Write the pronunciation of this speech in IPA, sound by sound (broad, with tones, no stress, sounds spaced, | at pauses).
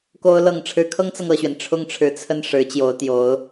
k o˥ ʊ̯ l ɤ˨˩ ŋ ʈ͡ʂʰ ɻ̩˧˥ kʰ ɤ˥ ŋ t͡s ɤ˨ ŋ ɤ˥˩ ɕ ɥ ɛ˩ n ʈ͡ʂʰ ʊ˥˩ ŋ ʈ͡ʂʰ ɻ̩˧˥ t͡sʰ ə˥˩ n ʂ ɻ̩˧˥ t͡ɕ j o˧˥ ʊ̯ t̪ j o˧˥ ʊ̯